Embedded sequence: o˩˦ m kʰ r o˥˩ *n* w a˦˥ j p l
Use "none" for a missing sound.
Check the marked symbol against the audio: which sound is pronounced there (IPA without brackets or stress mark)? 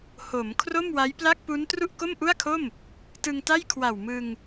m